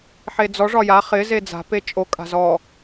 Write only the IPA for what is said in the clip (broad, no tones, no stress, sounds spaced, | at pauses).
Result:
ħ e d͡z ɔ ʐ ɒ j a χ ɪ z e d͡z a̤ p e t͡ʃʼ o kʼ a̤ z ɔ